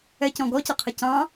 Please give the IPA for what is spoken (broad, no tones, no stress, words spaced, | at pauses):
ɛcɔ̃ ɡɔcʌqʰə cɑ̃